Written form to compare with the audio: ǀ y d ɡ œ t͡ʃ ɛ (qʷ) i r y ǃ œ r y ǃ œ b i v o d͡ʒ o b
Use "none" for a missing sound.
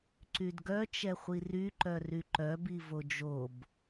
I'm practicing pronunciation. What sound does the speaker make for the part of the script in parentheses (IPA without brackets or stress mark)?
χʷ